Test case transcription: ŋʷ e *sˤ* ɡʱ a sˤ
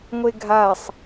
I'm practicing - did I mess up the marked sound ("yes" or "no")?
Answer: yes